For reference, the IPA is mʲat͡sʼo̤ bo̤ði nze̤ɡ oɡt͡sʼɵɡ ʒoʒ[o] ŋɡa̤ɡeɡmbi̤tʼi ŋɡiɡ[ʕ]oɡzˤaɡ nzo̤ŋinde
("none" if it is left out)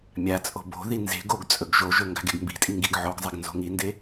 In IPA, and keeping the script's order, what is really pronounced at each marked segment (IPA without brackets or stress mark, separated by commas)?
ɵ, ʕ